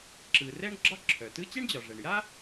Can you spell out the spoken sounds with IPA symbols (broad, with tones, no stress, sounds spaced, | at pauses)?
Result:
ǁ ɯ˩ r ɛ˥ ɳ ɡ͡ǁ ɒ˥ ǁʰ œ˩ t ɯ˥ t͡ɕ ɛ˥ ɳ d͡ʑ ɒ˩ ʐ ɛ˩ ɳ j a˥